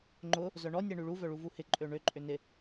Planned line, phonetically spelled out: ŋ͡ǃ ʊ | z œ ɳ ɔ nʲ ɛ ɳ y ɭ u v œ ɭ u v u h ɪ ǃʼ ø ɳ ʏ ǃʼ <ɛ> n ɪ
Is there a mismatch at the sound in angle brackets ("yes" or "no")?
yes